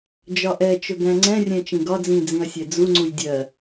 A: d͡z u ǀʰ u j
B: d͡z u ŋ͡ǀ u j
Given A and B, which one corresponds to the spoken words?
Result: B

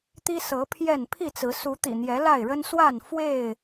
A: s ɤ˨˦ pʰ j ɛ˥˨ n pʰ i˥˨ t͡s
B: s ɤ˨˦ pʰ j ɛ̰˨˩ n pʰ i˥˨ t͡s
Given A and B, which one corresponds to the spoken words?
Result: A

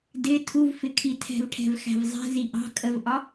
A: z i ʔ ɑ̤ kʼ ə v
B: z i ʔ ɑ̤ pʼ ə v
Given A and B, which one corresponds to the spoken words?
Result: A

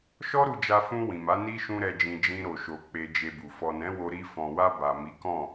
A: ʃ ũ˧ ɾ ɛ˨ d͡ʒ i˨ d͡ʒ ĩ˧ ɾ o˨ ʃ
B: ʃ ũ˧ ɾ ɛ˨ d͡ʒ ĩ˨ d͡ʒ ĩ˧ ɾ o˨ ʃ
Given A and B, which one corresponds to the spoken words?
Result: B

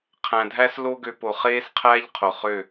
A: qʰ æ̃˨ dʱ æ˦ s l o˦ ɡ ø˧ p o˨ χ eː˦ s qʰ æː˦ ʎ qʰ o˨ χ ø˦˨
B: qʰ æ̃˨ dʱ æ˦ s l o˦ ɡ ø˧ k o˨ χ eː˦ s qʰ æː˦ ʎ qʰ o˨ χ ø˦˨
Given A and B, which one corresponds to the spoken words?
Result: A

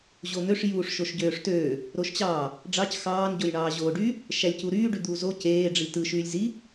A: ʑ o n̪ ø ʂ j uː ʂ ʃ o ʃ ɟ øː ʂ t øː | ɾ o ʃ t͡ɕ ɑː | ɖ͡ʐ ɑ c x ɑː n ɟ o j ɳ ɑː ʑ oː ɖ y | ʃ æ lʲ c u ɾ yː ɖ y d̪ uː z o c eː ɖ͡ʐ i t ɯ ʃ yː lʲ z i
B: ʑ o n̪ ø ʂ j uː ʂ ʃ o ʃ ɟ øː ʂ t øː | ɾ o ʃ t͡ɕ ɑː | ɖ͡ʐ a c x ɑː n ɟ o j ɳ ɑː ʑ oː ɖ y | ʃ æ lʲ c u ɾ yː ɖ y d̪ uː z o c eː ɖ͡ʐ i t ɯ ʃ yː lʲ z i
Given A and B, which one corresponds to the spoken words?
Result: A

